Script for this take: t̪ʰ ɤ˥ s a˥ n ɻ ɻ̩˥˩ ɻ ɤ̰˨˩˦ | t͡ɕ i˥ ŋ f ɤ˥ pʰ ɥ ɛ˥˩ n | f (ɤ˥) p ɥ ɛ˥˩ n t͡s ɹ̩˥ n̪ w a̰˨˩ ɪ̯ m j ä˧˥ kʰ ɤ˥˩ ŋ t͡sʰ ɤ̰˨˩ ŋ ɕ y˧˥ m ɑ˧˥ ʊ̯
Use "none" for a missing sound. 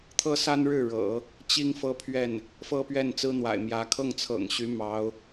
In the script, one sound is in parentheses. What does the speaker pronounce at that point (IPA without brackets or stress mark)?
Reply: ɤ˥